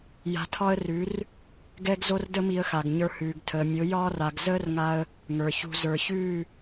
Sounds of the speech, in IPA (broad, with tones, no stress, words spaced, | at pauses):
ja̤˧tʰɒ˦ə̯ rʉ˨˦r | ɡɛ˦ɡzo˦rdə˦mi˧ə̯ xa˨ɡɲə˞˧hʉː˨ɡ tʰəː˨mʲo˨˦ jɒː˦r a˨ɡzəː˦rŋa˧ə̯ | ŋə˞˨çṳ˧ zə˞˨çʉː˦˨